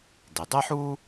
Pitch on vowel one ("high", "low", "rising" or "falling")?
low